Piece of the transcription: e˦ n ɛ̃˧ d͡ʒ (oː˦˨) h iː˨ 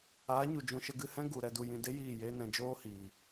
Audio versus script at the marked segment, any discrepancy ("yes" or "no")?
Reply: yes